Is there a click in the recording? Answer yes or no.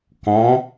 no